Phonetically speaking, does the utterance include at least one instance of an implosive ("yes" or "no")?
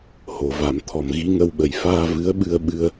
yes